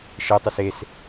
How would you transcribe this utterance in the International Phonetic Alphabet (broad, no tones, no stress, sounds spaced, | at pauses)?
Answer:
ʃ e tˤ y s e s